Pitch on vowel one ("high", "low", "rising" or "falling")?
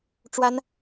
high